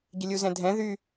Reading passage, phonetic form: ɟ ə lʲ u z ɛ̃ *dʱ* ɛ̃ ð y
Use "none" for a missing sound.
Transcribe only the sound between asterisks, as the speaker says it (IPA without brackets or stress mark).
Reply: dʱ